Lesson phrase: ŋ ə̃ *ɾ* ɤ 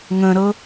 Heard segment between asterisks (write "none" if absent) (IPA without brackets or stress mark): ɾ